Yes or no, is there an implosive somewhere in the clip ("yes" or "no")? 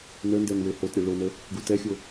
no